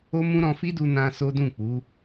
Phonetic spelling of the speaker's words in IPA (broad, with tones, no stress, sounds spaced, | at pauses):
o˦ m ũ˦ ɾ ɔ̃˧ f i˦ d u˧ n ã˧ s o˦ d ũ˦˨ k͡p u˨˦